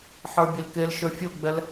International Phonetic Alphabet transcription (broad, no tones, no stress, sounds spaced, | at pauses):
ħ ə˞ bʲ e l k e l ʃ ə˞ fʲ o ɡ͡b ɛ l